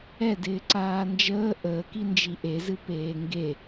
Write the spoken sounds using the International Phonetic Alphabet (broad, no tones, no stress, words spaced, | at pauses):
ɛdɪː ǀaːnd͡ʒəː ʔəːkind͡ʒi ʔezɨ peːŋɡe